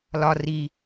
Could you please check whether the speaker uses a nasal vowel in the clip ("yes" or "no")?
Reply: no